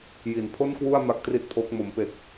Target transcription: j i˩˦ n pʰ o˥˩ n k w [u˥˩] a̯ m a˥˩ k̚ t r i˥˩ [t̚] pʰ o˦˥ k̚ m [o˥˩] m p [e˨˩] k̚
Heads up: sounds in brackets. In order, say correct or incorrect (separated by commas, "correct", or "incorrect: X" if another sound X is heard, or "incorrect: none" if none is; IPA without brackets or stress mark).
correct, correct, incorrect: o˩˦, correct